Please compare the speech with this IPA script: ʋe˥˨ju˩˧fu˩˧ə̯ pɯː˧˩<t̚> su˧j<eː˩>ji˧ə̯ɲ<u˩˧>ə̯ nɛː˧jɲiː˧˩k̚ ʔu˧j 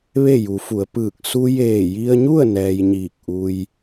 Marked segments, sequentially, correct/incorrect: incorrect, incorrect, incorrect

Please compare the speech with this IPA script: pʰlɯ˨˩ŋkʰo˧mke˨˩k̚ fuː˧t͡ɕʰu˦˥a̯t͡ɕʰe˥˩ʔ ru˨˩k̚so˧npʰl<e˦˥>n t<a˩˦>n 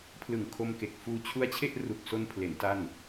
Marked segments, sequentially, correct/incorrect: incorrect, incorrect

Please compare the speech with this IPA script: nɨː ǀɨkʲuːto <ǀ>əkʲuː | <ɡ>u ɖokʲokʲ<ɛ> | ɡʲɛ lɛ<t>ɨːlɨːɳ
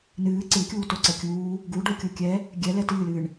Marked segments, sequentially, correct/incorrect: correct, correct, correct, correct

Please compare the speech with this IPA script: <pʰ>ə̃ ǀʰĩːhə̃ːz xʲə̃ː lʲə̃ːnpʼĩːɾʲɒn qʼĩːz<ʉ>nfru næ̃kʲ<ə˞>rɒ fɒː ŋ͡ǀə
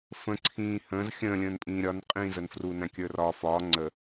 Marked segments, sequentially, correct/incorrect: incorrect, incorrect, correct

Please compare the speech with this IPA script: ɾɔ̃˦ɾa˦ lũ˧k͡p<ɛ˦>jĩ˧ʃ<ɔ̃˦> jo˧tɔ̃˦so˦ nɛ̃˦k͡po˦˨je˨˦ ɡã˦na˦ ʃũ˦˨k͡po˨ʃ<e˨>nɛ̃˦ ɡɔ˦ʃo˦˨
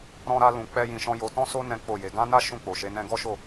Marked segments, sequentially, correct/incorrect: correct, correct, incorrect

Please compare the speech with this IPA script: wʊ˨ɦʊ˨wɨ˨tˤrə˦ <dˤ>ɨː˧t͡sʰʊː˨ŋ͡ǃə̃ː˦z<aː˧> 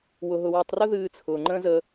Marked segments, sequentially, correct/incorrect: incorrect, incorrect

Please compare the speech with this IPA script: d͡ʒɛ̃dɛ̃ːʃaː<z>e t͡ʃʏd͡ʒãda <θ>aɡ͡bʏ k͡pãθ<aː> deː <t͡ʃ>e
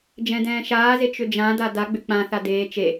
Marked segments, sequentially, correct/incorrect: correct, incorrect, incorrect, correct

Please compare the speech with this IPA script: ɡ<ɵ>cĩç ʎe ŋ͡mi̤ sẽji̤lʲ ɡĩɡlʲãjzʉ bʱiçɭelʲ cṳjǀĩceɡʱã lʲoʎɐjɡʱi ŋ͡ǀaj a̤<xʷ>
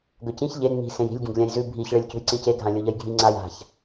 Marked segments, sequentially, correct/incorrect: correct, incorrect

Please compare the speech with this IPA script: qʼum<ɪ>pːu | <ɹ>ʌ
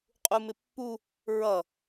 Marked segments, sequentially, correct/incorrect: correct, correct

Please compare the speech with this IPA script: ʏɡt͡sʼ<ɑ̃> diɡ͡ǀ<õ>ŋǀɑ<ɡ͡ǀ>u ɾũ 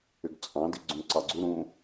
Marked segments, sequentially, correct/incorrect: correct, incorrect, correct

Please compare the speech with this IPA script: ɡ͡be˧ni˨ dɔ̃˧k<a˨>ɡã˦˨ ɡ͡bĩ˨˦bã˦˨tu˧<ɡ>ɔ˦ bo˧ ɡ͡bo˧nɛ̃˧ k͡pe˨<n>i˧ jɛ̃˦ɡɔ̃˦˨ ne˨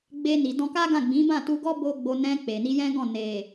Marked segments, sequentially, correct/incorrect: incorrect, correct, correct

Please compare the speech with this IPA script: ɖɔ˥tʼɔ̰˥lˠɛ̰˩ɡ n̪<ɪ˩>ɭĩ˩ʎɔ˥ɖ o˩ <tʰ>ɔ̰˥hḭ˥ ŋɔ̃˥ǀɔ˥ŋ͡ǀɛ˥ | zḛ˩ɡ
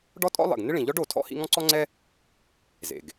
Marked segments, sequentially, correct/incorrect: incorrect, correct

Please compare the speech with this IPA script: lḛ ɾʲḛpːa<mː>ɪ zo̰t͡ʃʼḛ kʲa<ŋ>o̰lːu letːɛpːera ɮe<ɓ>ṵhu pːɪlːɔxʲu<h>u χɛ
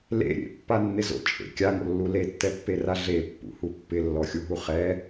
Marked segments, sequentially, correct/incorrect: incorrect, correct, incorrect, incorrect

